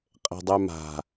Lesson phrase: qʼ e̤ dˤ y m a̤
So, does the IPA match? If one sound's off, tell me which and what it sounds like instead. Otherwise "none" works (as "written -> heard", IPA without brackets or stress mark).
none